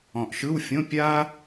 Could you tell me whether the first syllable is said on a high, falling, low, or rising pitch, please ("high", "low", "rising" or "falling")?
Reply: low